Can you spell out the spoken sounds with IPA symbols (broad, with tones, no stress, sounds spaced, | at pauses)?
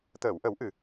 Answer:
t̪ əː˨˩˨ w ʔ ə˨˩˦ w ʔ ɨ˨˩